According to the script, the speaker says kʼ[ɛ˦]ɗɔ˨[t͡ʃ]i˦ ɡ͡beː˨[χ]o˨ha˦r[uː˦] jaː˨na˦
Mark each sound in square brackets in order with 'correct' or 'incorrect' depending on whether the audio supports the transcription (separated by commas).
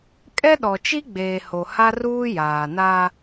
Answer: correct, correct, incorrect, correct